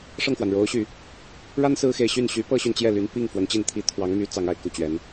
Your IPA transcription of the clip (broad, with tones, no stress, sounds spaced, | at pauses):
ʂ ɤ˥˩ ŋ x w a˩ n ɻ o˧˥ ʊ̯ ɕ y˨˩˦ | ɻ a˥ n s ɹ̩˥ x e˧˥ ɪ̯ ɕ y˥˩ n ɕ y˧˥ p ɤ˥˧ ɕ y˥˧ n t͡ɕ j ɛ˥˩ l y˧˥ n p i˥˩ ŋ f w ə˧˥ n t͡ɕ i˥˩ n t̪ʰ i˥ t̪ʰ w ɑ˧˥ ŋ m y˧˥ t͡s ɑ˧˥ ŋ a˨˩ ɪ̯ k u˥˩ t͡ɕ ɥ ɛ˧˥ n